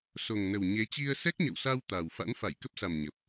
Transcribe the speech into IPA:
so˨˩ŋ nə˨˩wɲe˨˦t͡ɕi˧ə̯ sɛ˦˥k̚ɲə̰˧˨wsa˧w t̪a˨˩w fa̰˧˥nfa˧˩jkə˦˥p̚ sa˨˩m ɲə˨˩p̚

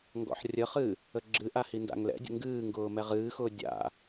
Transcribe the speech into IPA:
ŋɡɔ̰ħrʲəχɨ | əɡ͡ǁɨʔa hinda̰ŋlɛ̰dʲə̰ ŋɡɨːŋɡʊː mɛʁɨːxʊː dʲa̰

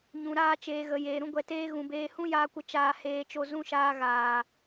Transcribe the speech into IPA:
ɲũ˨ɾaː˧t͡ʃeː˨ɣə˨ jeː˨ɾũ˦ ɡʷɛ˨teː˦ ɣũ˨beː˧ hũ˦jaː˧kʷə˧ t͡ʃaː˧heː˧t͡ʃo˧ zũ˦ʃaː˧ɣaː˨

